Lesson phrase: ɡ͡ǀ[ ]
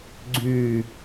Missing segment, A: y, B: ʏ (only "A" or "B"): A